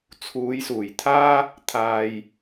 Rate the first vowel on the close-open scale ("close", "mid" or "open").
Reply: close